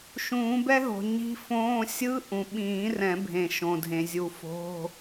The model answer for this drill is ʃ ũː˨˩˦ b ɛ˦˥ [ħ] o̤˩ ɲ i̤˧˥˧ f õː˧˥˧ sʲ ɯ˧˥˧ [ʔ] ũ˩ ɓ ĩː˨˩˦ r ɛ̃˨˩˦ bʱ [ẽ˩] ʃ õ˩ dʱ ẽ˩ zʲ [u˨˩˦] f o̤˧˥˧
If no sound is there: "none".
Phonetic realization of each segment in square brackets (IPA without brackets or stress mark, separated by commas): ɦ, ʔ, ẽ˩, u˨˩˦